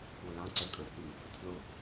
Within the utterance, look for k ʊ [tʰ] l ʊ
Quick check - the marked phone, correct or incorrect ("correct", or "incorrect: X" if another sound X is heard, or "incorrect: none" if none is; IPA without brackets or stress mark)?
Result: correct